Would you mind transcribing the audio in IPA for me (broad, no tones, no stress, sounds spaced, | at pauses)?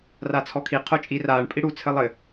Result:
r a t͡sʰ ɔ kʰ i qʰ o t͡ʃʼ i r aː ɳ pʼ i ɽ u t͡sʰ ɘ lˠ ɘ